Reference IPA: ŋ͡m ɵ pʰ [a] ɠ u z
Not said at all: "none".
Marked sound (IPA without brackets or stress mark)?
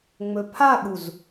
a